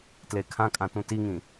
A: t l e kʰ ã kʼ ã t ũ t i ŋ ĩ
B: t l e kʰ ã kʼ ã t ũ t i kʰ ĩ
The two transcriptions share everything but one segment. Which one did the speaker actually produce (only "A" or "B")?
A